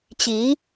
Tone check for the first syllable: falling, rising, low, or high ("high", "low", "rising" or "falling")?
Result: rising